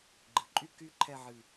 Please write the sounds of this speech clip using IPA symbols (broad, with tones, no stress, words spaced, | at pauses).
ɡ͡ǃɨ˩˧ǃʼy˥ ky˥ǃʰɛ˥˧ʕɨ˧˩